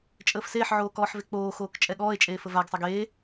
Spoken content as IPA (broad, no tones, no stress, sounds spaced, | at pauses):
t͡ʃʼ əː f s eː ħ ʕ oː k ɔː ħ v e k͡p oː x oː k t͡ʃʼ ɛ ɠ ɔː e̯ t͡ʃʼ eː f ə v a ɡ sˤ ɛ ɡ eː